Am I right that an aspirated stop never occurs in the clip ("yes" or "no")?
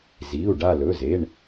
yes